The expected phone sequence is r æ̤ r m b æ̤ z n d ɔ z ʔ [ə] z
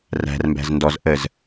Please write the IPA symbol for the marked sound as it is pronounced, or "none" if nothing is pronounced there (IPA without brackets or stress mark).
ə